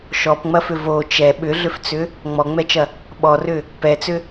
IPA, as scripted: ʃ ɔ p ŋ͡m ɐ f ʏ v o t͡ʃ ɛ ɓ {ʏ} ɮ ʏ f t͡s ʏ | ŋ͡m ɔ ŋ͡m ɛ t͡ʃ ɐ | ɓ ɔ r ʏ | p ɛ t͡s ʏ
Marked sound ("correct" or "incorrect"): correct